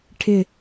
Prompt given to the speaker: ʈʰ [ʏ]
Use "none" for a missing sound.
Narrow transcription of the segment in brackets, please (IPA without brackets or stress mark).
ɪ